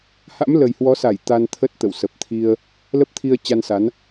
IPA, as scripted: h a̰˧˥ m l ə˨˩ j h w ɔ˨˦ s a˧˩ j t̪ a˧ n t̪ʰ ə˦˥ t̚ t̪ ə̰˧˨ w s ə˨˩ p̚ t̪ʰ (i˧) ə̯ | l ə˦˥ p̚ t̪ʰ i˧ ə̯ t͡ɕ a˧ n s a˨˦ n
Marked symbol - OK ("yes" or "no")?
yes